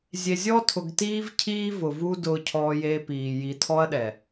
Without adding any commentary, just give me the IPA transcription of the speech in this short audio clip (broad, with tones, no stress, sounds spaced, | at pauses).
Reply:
zʲ e˨ zʲ ɔ˦ tʰ ʊ˨ ɡ t iː˦ v cʰ iː˦ v ʊ˨ v u˦ d ʊː˦ cʰ ɔː˦ j e˦ p iː˨ j i˨ tʰ ɔ˦ ɐ̯ ɗ ɛ˨